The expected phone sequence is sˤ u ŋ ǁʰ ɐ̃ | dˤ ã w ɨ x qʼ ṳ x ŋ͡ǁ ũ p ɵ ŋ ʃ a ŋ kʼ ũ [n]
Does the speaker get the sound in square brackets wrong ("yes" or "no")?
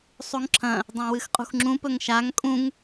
yes